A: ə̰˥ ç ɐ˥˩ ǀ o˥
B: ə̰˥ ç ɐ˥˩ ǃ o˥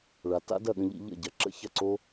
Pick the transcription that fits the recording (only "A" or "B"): A